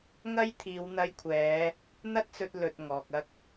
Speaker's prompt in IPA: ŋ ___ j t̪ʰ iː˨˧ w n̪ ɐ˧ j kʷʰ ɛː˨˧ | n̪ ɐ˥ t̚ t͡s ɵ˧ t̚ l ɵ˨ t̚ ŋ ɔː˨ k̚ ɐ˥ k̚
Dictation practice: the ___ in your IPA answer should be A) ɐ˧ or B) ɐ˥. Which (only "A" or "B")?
B